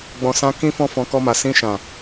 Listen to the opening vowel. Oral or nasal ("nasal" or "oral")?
nasal